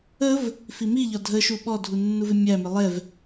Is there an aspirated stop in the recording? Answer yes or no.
no